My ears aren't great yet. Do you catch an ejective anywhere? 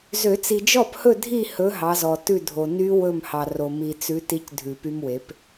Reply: no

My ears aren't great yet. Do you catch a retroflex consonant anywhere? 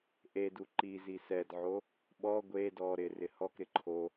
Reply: no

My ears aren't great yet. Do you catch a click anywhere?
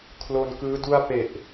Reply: no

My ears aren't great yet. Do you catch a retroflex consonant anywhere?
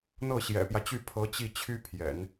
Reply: no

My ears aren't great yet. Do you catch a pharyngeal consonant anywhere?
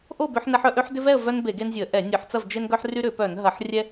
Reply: yes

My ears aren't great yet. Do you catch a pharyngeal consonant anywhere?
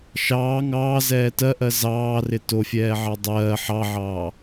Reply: yes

